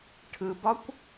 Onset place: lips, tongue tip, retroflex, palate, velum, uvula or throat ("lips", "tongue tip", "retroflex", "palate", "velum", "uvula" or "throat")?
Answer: retroflex